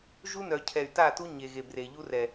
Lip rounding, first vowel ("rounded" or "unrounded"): rounded